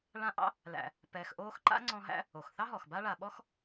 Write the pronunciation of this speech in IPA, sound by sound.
ɭ ã˦ ʔ ɑ̰˥ | l æ̰˨ | p ɛː˨ x ʔ oː˦ x ǃ a̰˥ ŋ͡ǀ ɔ̃˦ ɦ æ̰˥ | o˩ x θ ɑ˦ ɦ ɔ˩ x b a˦ ɭ a˨ ɓ ɔ˥ x

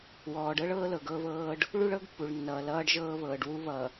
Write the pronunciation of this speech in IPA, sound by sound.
w ɔː˨ ɖ ɤ˦ ɭ ɤː˦ l ɤ˨ ɡ ɤː˦ β ɤː˦ ɖ | ɭ u˦ ɭ ɤ˦ ɡ pː u˨ ɭ nː ʌː˨ l ʌː˦ ɖ ʒ ɤː˦ β ɤː˨ ɖ w u˦ β ʌ˨

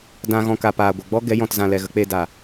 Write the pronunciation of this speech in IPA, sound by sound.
d ã˨ ɣ ɔ̃˨ k aː˨ p aː˨ ɡʷ ɛ˨ ɡ͡b ɔ˦ ɡ ɛ˨˦ j ɔ̃˨ t z ã˨ l ɛ˨ ɣ ə˧ k͡p eː˧ d aː˨

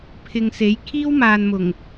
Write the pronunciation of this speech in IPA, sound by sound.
pʰ ɪ˨ ŋ s e˨˥ j kʰ iː˥ w m aː˨ n m ʊ˨˩ ŋ

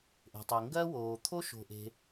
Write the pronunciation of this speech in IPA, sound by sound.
ʔ e̤˩ tˤ e˩ ŋ ɡ ɜ˥ w oː˩ t̪ʰ o˥ ʃ o̤˩ ʔ e̤˩

